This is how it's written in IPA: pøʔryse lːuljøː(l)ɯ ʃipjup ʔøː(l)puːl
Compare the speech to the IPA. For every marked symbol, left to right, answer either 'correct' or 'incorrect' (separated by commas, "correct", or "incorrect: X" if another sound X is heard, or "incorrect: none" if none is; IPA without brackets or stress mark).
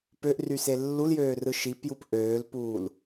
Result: incorrect: r, correct